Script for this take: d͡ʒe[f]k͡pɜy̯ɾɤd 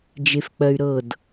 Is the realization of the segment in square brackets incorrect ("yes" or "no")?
no